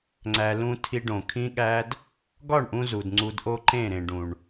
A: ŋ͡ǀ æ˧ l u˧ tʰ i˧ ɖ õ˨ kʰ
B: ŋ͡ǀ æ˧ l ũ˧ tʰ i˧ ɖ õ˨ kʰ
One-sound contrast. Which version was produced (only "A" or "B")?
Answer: B